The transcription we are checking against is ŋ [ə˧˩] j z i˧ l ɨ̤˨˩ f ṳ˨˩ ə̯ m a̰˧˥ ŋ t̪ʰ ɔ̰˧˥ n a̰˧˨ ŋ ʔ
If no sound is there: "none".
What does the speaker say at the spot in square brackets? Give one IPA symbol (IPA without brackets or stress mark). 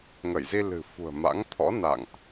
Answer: ə˧˩